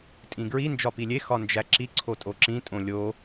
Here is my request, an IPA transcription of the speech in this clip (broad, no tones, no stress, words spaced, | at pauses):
tʼĩɡɹi nd͡ʒɒpilʲe xɒnd͡ʒæǁi ǀʰotʼoǁĩ tʼõlʲo